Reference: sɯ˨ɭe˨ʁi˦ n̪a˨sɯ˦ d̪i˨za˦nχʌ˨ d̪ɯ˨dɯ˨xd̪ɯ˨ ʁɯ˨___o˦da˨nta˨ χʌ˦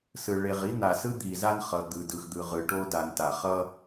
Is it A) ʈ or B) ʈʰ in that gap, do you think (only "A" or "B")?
A